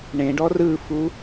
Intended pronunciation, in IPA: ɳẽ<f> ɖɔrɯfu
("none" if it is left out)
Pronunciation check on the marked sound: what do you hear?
none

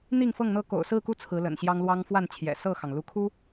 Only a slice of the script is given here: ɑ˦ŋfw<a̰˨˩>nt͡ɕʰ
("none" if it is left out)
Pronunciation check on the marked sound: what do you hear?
a˥˨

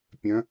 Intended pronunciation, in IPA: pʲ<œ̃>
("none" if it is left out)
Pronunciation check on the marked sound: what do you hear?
œ̃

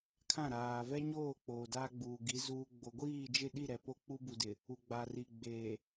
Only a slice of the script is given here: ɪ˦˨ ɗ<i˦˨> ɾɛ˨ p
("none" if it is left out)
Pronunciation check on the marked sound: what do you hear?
i˦˨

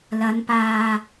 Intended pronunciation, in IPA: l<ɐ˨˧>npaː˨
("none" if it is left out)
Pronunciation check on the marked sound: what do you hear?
ɐ˨˧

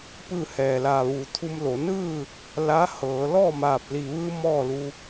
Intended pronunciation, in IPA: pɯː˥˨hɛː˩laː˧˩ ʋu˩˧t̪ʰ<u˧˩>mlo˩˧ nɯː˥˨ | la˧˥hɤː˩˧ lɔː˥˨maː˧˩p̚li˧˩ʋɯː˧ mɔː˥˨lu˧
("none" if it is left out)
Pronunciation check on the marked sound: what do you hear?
u˧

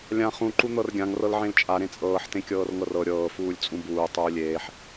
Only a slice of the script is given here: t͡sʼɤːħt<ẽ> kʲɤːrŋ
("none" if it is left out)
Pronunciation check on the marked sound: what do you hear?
ẽ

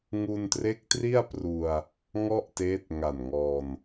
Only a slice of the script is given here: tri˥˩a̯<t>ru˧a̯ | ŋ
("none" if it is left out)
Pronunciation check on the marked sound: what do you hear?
p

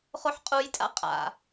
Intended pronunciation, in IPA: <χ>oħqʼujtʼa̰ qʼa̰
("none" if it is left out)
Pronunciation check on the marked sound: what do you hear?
χ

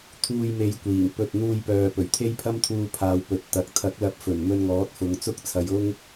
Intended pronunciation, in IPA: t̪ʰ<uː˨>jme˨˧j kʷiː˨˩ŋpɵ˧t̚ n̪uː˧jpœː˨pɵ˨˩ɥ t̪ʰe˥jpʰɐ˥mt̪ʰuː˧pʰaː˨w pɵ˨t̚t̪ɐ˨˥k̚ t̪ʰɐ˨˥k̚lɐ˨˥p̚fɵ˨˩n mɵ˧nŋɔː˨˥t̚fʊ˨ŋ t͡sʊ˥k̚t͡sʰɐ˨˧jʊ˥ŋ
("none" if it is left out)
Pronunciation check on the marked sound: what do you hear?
uː˧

